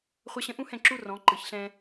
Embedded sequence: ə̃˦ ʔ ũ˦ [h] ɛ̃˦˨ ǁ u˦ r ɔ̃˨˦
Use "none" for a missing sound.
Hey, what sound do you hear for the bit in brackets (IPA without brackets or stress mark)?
h